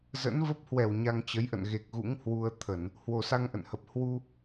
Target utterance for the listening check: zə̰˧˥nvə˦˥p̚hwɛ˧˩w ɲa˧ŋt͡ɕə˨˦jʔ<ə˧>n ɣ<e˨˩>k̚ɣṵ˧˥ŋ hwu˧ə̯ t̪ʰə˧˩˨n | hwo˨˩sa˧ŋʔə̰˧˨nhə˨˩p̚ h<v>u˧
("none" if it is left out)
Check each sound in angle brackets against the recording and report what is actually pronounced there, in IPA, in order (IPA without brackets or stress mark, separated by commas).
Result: ə̰˧˨, e˨˩, w